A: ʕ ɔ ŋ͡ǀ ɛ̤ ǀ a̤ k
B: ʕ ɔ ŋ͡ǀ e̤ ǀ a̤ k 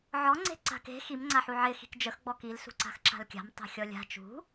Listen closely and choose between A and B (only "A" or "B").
B